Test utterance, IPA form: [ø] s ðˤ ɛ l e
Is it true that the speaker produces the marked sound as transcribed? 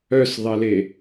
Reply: no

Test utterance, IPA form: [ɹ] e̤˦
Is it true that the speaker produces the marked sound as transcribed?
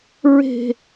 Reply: yes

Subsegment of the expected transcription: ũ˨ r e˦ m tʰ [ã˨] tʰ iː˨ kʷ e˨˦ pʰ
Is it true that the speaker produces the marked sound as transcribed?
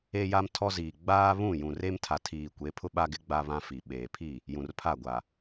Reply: no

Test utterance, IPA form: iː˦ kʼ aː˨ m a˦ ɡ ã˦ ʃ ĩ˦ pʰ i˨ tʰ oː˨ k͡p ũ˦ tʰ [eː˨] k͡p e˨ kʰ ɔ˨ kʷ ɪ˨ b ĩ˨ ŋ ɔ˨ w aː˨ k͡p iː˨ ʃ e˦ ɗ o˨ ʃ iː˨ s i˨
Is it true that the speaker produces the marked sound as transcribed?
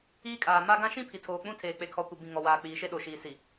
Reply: yes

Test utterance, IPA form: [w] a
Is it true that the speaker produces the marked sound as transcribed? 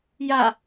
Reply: no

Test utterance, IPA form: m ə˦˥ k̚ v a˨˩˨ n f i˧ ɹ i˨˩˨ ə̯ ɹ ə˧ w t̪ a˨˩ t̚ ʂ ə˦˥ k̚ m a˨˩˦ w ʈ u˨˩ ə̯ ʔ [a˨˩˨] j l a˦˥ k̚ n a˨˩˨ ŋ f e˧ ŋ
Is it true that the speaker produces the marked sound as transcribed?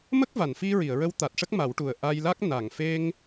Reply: no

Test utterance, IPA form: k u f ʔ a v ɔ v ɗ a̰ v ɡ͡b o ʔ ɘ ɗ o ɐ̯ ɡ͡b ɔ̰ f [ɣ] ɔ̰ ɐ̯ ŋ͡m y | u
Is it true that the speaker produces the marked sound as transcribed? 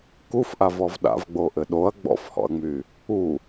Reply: no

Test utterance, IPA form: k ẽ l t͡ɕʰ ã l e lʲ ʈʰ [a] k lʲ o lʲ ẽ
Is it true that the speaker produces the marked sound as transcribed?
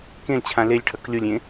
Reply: no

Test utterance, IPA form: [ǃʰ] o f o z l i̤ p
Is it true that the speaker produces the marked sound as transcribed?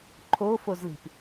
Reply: yes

